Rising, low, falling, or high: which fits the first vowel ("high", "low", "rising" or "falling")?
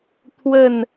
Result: falling